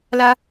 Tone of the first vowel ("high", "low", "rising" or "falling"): high